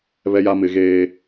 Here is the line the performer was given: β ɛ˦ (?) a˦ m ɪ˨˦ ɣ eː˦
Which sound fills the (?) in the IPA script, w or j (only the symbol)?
j